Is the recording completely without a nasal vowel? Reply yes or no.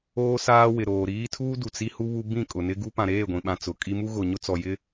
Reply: no